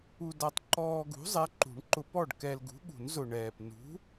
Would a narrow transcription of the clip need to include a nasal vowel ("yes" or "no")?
no